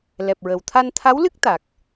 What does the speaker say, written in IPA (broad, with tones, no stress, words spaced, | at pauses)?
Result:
lɛ˨˩p̚ɹə˨˩wt̪ʰa˧n t̪ʰa˧˥wlɨ˦˥k̚ t̪a˨˩k̚